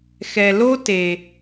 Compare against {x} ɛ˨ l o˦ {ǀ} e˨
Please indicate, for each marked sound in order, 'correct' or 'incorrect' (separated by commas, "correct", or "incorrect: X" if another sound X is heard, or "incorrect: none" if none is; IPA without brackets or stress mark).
correct, incorrect: t